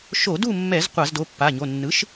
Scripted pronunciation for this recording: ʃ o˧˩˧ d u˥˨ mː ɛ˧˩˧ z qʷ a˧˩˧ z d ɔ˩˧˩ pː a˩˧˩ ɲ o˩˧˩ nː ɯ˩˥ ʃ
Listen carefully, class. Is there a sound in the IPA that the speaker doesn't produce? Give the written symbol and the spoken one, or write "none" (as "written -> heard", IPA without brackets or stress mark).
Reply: ɔ˩˧˩ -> o˩˧˩